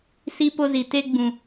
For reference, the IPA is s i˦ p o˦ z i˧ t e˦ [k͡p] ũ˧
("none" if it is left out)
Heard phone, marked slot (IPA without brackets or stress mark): ɡ͡b